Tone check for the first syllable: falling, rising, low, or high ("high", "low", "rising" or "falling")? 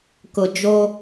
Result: low